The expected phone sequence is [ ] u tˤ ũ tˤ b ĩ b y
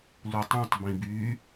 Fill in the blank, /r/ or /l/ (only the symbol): l